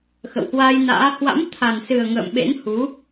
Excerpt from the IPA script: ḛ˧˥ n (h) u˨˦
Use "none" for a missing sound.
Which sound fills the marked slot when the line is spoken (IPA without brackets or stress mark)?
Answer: h